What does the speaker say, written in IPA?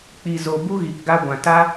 k͡p i˨ z o˨ b u˦ ɣ i˨ k ɡ a˧ ɡʷ ã˨ t a˦

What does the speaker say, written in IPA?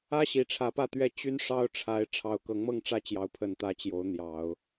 ä˥ ɕ i˨˩ ʈ͡ʂʰ ä˧˥ p ä˥˧ t̪ ɥ ɛ˥˩ t͡ɕ y˥ n ʂ ɑ˥ ʊ̯ ʈ͡ʂʰ a˧˥ ɪ̯ ʈ͡ʂʰ ɑ˨˩ ʊ̯ k ɤ˧˥ ŋ m ɤ˥˧ ŋ ʈ͡ʂ ä˥˩ t͡ɕ j ɑ˧˥ ʊ̯ pʰ ə˨˩ n t̪ ä˧˥ t͡ɕ j o˧˥ ʊ̯ n̪ j ɑ˨˩˦ ʊ̯

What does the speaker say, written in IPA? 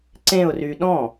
ǀ ẽ ʊ̯ r y ɗ ɔ̃

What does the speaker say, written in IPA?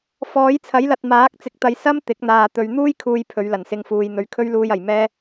f ɔː˨˥ j t͡sʰ ɐ˨˥ j l ɐ˨ t̚ m aː˨˥ k̚ t͡s ɪ˨ k̚ t̪ ɐ˨ j s ɐ˥ m t̪ ɪ˨˥ k̚ n̪ aː˨ t̪ ɵ˨ ɥ n̪ uː˥ j kʰ uː˨ j pʰ ɵ˨˧ ɥ l ɐ˨˩ n s ɪ˧ ŋ f uː˨ j n̪ ɵ˨ ɥ kʰ ɵ˥ ɥ l uː˧ j ɐ˨˩ j m ɛː˥

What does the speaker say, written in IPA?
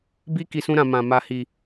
b i˦ k i˧ s ũ˦ ɾ ã˧ m ã˧ m a˧ h i˧

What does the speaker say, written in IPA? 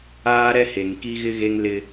aː˦ ɾ ɛ˦ h e˨ ŋ k i˦ ɣ ɪ˦ ɣ e˦ ŋ l ɪ˦

